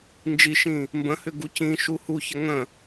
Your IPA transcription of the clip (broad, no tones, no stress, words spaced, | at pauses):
nd͡ʒiʃĩ | mbə̃hʏ ɡucĩʃu huçə ŋə̃